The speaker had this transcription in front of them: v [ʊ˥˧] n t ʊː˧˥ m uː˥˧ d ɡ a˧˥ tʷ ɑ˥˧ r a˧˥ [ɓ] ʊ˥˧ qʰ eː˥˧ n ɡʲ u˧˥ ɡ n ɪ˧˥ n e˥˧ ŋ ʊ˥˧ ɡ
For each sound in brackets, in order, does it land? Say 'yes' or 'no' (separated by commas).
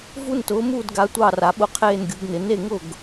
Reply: no, yes